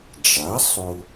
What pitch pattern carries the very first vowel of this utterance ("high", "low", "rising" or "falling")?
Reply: rising